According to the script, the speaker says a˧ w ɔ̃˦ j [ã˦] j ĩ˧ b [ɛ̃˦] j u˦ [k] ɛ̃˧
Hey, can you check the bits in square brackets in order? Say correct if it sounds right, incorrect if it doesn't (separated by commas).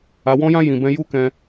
correct, correct, correct